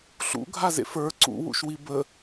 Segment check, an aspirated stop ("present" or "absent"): absent